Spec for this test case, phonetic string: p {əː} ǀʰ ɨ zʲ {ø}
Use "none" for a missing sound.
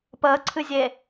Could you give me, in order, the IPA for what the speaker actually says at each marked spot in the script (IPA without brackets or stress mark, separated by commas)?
əː, e